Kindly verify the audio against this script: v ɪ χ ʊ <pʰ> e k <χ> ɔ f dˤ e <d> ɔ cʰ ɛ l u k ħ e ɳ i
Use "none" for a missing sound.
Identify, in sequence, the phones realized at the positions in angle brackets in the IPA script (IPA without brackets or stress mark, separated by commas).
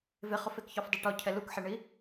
f, ç, ʈ